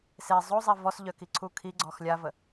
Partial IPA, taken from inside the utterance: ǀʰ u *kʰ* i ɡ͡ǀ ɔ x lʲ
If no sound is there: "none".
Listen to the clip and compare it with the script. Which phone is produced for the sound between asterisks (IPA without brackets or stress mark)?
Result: kʰ